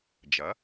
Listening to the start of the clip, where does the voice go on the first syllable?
rising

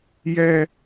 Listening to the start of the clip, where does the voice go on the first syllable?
low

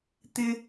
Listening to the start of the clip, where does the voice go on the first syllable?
high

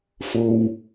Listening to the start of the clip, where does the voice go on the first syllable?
low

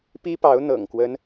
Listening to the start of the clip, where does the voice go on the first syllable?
high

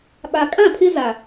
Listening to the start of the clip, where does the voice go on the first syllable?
low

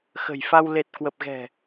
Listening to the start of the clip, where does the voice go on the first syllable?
low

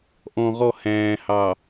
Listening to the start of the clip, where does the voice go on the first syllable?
low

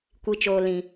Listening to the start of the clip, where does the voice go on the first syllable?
low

